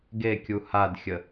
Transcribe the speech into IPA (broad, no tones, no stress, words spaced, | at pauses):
ɡekʲu hadxʲə